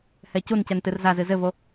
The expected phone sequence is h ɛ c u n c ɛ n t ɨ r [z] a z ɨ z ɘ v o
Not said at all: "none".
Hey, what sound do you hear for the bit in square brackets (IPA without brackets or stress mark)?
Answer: z